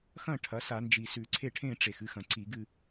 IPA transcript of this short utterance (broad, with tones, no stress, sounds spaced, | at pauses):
x ɐ̃˥˨ ʈʰ ɐ˩˥ s a˧˩˧ n d͡ʒ i˨˩ s ʉ˨˩ ǀʰ e˥˨ ʈʰ ẽ˥˨ ʈ͡ʂ e˨˩ x ɨ˧˥ x ɐ̃˨˩ ǀ i˧˩˧ ɡ ɨ˥˨